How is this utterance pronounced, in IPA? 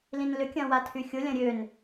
l ĩ n l ʏ kʲ ɐ̃ w a tʰ y xʲ ʊ lʲ ɐ̃ ɾʲ ø n

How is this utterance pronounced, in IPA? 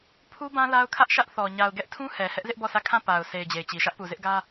pʰ u˦ b ã˦ l a˦ ʊ̯ kʰ ä˦ ʔ ʃ ä˦ ʔ θ ɔ˨ ɲ a˨ ʊ̯ ɡ ɛ˦ ʔ tʰ ũ˦ h ɛ˨ h ɛ˦ ʔ z ɪ˦ ʔ b ɔ˦˨ sʰ ä˦˨ kʰ ã˦˨ p a˨ ʊ̯ sʰ e˨ ɪ̯ d͡ʑ e˨ ɪ̯ t͡ɕ i˨ ʃ ä˦ ʔ p u˨ z ɪ˦ ʔ ɡ ä˦

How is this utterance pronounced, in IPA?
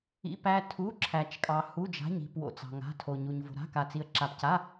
ḭ˧˥˧ p æ˧˥˧ tʰ u˧˥˧ ǁʰ æ˧ t͡ʃ kʼ ɑ˧ h u˧˥˧ d͡ʒ a̤˧˥˧ ɲ i̤˧˥˧ p w o̰˧ t͡s ɑ̤˧ ŋ a̤˧˥˧ tʰ o˧ ɲ u˧ ɲ v o̤˧ ɾ a̤˧˥˧ k a˧ t͡s i˧ ə̯ ǁ a˧ p c a˧˥˧

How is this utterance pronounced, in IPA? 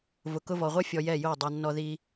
v ʊ˨ k ʊ˧ v ɔ˨ ʁʷ ɛ˦ fʲ ɔ˧ j ɛ˦˨ j o˦˨ dˤ a˧ nː ɔ˧ ð i˧

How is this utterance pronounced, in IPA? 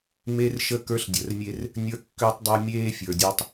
m e˦ r ʃ ə˦˨ k ə˞˦ ɬ dʲ ə˨˦ r mʲ e˦ r | nʲ ə˞˦ kː ø˦ tˤ dˤ ə˞˦ mʲ eː˦ fʲ ə˞˨ dʲ ɔ˦ tˤ

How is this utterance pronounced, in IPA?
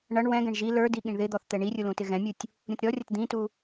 ɳ ʌ ɳ w ɛ̃ ɡ ɛ̃ ɳ ʒ i l ə˞ d i ɠ ĩ ɳ ð ɪ d̪ ɔ θ t̪ ɛ ɳ i rʲ u l ũ t ɪ ɣ ɛ̃ mʲ u tʲ | ɾʲ ũ t ɾʲ ɔ rʲ ʌ t d̪ ĩ t u

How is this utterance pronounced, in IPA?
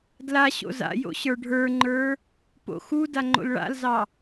d l a ɕ o̰ z a̰ j o̰ ɕ ə˞ ɖʱ ə˞ ŋ͡ǃ ə˞ | p o̰ x u d a ŋ͡ǃ o̰ l ɭ a̰ l z ɑ

